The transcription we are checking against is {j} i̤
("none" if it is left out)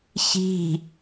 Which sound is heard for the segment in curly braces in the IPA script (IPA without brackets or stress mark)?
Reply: ç